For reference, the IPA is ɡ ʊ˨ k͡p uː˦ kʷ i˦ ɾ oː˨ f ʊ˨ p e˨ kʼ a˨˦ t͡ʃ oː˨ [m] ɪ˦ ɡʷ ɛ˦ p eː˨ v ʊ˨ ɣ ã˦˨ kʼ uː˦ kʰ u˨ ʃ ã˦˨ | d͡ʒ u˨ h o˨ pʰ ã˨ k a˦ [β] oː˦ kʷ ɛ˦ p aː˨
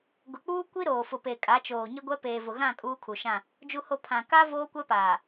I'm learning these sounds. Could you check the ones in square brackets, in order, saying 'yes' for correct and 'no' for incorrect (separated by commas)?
no, no